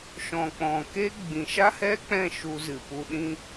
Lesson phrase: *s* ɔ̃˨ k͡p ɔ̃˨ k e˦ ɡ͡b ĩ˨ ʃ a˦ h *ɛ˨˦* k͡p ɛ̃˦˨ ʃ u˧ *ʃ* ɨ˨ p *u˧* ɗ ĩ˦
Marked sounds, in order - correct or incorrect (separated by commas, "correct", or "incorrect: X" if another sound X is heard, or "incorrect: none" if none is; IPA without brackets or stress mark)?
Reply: incorrect: ʃ, incorrect: ɛ˦, incorrect: z, correct